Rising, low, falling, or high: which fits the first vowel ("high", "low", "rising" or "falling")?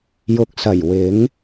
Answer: low